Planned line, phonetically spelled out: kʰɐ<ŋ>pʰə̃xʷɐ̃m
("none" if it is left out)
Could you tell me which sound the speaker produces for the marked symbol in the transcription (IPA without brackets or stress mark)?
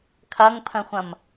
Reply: ŋ